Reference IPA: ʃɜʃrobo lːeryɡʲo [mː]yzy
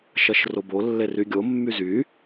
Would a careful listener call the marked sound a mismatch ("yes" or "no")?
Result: no